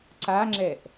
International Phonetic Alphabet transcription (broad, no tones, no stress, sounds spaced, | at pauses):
ǀ a ŋ͡ǁ ɛ ʔ